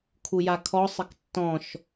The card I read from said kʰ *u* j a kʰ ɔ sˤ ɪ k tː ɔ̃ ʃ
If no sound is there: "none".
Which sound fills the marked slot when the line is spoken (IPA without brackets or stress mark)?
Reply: u